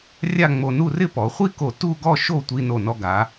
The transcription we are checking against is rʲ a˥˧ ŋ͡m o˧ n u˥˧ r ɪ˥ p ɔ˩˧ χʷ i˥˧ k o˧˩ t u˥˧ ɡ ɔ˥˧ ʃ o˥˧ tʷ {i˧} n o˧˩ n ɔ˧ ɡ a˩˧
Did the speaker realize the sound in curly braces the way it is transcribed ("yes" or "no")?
yes